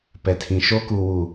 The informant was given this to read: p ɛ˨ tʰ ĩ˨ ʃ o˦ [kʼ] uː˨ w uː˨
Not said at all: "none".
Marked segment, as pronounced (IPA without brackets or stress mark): k